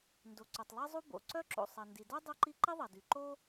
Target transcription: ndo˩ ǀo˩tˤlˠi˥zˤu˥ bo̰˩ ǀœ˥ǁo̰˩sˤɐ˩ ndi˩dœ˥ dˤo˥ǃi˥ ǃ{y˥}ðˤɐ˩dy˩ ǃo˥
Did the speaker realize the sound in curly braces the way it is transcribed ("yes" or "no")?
no